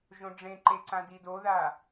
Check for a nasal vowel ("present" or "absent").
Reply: present